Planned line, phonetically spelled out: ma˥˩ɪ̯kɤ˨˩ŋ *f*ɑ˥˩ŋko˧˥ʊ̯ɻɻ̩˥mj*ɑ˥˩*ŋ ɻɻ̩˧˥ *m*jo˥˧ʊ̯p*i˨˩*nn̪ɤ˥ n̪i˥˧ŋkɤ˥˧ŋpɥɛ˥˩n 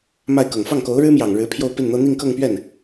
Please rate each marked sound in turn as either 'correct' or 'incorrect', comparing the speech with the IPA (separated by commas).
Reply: correct, incorrect, incorrect, incorrect